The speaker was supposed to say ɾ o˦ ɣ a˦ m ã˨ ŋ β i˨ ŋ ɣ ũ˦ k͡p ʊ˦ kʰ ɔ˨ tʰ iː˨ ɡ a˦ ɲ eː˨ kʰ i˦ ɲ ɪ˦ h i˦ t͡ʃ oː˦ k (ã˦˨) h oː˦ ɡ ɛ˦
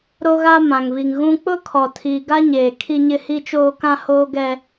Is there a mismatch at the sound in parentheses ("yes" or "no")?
yes